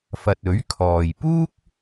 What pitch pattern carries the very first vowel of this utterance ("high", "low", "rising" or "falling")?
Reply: low